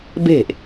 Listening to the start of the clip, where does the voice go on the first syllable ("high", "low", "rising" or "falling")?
falling